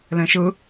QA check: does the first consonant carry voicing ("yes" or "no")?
yes